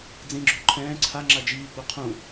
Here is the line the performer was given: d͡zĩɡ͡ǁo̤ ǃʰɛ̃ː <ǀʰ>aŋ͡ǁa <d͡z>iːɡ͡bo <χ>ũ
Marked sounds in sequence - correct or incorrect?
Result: correct, incorrect, incorrect

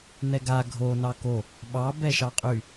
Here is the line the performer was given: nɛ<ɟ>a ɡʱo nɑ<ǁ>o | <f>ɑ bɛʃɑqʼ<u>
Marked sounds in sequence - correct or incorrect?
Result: incorrect, incorrect, incorrect, incorrect

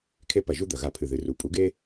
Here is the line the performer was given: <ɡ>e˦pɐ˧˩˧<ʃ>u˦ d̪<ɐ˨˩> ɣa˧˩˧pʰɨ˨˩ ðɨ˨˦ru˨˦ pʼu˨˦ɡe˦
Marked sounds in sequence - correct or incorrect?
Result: incorrect, incorrect, correct

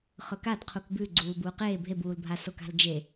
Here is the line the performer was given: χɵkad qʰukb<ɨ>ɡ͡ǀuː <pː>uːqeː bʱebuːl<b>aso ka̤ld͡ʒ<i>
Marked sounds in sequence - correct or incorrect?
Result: incorrect, incorrect, incorrect, incorrect

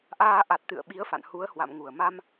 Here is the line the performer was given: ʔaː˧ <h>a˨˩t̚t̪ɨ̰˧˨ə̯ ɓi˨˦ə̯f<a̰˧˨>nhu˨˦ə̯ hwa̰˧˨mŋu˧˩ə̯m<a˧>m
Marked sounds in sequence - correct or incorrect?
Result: incorrect, correct, correct

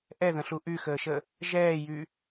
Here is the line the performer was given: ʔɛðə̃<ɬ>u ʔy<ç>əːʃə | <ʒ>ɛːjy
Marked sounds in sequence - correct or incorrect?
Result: correct, incorrect, correct

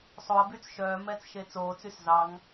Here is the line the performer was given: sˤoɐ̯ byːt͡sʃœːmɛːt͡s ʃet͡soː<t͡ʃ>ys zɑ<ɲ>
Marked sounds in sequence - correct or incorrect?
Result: incorrect, incorrect

